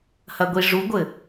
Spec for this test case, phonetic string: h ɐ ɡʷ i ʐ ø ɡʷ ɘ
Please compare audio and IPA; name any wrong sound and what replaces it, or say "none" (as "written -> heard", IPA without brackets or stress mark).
ø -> u